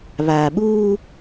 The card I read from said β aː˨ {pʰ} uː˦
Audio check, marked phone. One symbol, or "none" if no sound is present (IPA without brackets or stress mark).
ɓ